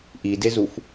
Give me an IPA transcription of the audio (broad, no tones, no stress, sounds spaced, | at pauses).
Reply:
ʔ i d e z u f